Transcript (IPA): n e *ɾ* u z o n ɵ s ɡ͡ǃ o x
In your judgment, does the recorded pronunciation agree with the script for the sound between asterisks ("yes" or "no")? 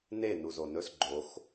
no